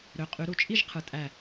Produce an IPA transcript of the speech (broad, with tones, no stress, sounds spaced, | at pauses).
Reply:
ɾ ø˨˦ qʼ y˨˦ ɾ u˧˩ t͡ʃʼ i˥˧ ʒ qʰ ɯ˨˩˦ tʼ æ˧˩